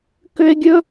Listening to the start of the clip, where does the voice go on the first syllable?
high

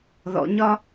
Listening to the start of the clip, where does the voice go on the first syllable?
high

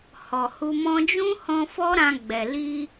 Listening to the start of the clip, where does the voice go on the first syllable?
low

